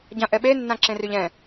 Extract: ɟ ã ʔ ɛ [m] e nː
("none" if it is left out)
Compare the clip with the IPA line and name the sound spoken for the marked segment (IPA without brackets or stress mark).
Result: ɓ